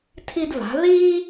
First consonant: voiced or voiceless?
voiceless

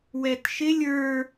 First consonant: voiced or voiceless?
voiced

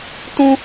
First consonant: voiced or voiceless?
voiceless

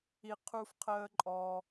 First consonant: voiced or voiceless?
voiceless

